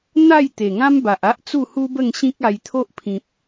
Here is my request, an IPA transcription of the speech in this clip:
n̪ a˥˧ j t̪ e˨˩ ŋ ã˦ m b a˨ ʔ a˦ ʔ t͡s u˥˧ h u˦ b ə˥˧ ŋ ɕ ĩ˦ k̚ a˧ j t̪ʰ o˦ ʔ pʰ ĩ˨ p̚

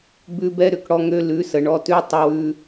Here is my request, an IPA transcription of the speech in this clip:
b ʉ˦ b ɛ˦ ɾ ʏ˨ k ɽ ɔ˦ ŋ ø˦ l ʉ˨˦ s ə˨ ɳ ɔ˦ t ʉ˦ tˤ ə˦ w ʉ˦

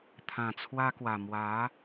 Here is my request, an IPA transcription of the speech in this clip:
t̪ʰ ã˨˩ t͡sʰ w a˧ k w a˨˩ m w a˨˦

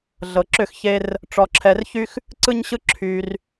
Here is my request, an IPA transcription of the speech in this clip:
ɮ ɤ˨ ǁ ʏ˦˨ x ç e˧ r | ʈ͡ʂ ɔ˧ ǁʰ ɛ˧ r ç y˦ x | ǀ ɯ˦ ɲ ɕ ɯ˦ ǁʰ y˧ r

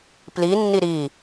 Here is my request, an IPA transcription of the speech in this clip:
p l i nː i ɾ i

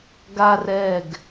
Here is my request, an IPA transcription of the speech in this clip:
ɡ a r ɛ ɡ

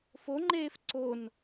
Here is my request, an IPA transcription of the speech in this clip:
f o ŋ͡ǃ eː f ǀ o n

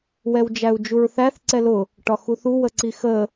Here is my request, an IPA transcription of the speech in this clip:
w ɛ w d͡ʒ æ u̯ d͡ʒ u ɹ θ æ θ ǀ ɛ l ʊ | ʈ ɒ x u θ u w ə ǀ i x ə

